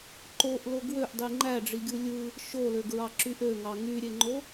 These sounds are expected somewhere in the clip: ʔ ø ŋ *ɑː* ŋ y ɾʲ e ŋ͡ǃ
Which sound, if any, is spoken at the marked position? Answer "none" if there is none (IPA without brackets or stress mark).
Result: ɑ